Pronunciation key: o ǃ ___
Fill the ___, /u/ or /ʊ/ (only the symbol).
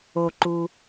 u